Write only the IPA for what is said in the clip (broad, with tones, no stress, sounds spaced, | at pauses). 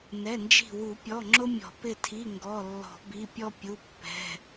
n ɛ˩˧˩ n d͡ʒ i̤˧˩ w u˨˩˦ pʲ ɔ˩˧˩ ŋ͡ǁ ʊ˦ mʲ ɔ̤˨˩˦ p ɪ˧˩ tʰ i˩˧˩ ŋ ɡ ɔ˩˧˩ lː ɔ̤˨˩˦ b i˩˧˩ pʲ ɔ˦ pʲ u˩˧˩ pː ɛ̤˩˧˩